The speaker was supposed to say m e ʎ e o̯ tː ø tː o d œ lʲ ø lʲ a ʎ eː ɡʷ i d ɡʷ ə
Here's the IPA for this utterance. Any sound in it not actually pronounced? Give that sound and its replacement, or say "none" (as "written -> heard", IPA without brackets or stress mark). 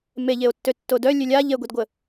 eː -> e